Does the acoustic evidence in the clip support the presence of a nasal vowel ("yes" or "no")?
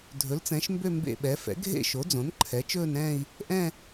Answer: yes